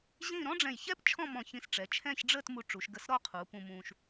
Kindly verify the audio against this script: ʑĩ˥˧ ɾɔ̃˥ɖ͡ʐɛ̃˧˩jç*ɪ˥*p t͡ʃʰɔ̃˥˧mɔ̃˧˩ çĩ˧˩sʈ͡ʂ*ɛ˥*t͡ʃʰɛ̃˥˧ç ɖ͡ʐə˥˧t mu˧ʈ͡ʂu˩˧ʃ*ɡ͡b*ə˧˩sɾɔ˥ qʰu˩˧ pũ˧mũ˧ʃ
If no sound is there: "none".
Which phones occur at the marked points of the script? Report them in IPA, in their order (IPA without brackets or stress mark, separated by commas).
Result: ɛ˥, ɛ˩˧, ɡ